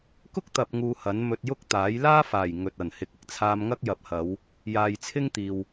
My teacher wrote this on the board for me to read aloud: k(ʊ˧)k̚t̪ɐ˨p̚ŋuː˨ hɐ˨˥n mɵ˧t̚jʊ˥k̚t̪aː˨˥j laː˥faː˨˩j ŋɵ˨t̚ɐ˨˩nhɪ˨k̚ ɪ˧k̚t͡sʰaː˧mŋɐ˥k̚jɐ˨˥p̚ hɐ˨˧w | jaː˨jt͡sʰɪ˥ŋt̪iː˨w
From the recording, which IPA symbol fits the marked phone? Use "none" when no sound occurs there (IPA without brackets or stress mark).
ʊ˥